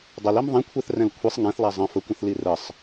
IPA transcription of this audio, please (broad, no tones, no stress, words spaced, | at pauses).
dˤəlim ðˤĩkʷʰɛθrɛ̃l kʷʰisˤ ŋɛ̃θlˠa zˤə̃ fəkʷə̃θli rəsˤ